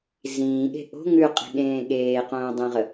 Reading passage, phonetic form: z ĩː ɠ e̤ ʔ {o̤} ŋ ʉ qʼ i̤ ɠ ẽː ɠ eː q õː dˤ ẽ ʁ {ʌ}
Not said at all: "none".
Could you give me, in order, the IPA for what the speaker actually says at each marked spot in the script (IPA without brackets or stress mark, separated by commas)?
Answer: o̤, ə